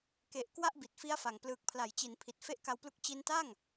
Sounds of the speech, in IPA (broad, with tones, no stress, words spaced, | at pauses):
ke˨˩ʔ kwa˥˩ʔbi˨˩t̚fi˦˥a̯fa˨˩ŋ plɯː˨˩k̚pʰla˩˦jt͡ɕi˩˦npʰi˨˩t̚ fe˦˥ʔka˧wplu˦˥k̚ t͡ɕi˧nta˥˩ŋ